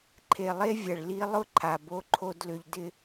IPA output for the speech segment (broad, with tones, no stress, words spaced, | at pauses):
ǃʰe˨lˠe˦vʲɐ˨ɭ li˦ lˠʊ˦ ǃʰa˨ bo˦ ǃʰo˦dlʏ˦ʎ dɪ˦